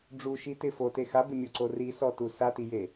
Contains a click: yes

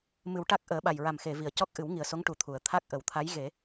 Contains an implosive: yes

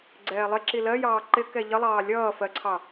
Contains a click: yes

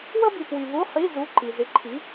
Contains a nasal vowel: no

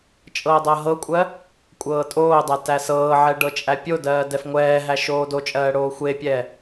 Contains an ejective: yes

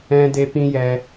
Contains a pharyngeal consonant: no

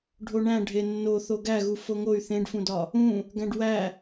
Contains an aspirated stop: no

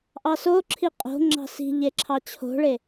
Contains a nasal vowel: no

